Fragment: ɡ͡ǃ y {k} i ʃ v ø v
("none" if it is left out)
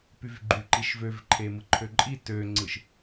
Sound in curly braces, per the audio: ǃ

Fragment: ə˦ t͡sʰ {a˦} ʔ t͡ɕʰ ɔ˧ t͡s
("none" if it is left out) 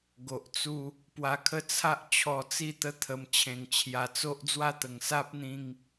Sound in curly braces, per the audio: a˦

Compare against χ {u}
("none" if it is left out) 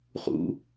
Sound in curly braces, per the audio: ṵ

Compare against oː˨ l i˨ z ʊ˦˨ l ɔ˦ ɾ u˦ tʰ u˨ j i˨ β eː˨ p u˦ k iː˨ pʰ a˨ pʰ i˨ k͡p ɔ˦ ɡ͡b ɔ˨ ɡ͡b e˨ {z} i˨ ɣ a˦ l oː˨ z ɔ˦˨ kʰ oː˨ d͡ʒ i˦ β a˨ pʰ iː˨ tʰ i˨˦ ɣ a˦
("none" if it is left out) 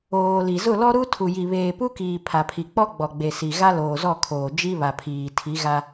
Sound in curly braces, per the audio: s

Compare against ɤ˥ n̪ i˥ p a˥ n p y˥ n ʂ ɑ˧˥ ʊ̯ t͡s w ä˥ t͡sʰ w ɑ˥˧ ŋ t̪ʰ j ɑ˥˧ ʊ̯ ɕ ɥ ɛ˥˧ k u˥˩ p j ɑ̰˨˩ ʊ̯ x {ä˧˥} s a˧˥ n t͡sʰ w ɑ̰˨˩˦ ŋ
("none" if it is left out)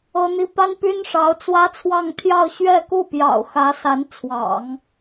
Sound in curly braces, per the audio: ä˧˥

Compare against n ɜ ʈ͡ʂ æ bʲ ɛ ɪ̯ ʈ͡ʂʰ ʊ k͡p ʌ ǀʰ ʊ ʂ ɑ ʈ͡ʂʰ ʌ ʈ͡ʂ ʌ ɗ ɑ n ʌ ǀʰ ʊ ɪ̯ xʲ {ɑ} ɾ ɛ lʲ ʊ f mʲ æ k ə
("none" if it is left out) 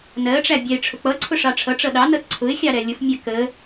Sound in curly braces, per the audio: ɑ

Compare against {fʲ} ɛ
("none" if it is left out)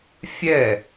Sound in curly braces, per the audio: fʲ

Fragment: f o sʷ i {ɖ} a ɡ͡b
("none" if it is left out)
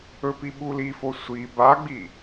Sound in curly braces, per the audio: b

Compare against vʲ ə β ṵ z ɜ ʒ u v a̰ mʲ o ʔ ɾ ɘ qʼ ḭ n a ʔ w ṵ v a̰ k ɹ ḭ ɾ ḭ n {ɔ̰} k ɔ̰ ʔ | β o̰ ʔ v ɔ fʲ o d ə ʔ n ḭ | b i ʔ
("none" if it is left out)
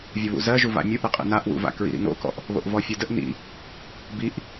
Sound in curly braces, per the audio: o̰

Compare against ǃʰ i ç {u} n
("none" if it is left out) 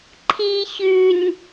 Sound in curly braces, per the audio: ʉ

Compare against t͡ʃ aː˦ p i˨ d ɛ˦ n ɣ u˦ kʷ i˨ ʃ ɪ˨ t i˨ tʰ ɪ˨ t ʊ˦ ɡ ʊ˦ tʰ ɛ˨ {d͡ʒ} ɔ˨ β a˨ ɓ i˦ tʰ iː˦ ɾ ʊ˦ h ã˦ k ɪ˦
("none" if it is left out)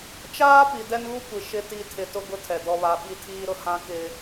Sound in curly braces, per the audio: d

